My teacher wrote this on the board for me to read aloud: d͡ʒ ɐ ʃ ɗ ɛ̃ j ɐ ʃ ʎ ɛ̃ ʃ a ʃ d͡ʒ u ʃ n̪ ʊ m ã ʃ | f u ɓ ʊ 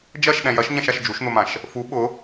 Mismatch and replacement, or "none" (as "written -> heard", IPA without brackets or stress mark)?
ʎ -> ɲ